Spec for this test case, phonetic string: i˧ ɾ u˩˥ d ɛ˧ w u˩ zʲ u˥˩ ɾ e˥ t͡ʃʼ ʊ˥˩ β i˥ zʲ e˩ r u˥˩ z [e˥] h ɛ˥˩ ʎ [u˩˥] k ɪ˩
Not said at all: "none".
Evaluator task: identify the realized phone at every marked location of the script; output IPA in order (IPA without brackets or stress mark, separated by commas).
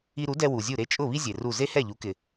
e˥, u˩˥